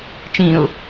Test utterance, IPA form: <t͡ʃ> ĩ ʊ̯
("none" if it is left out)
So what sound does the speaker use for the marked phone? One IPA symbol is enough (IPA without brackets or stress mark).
t͡ʃ